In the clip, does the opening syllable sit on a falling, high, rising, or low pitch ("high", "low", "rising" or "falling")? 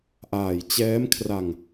low